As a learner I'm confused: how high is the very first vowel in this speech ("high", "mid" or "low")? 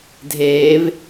mid